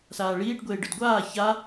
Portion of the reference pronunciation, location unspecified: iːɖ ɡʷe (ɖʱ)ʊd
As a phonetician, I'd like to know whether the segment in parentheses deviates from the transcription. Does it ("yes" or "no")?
yes